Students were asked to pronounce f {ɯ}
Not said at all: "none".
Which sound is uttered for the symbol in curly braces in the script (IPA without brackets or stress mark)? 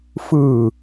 ɯ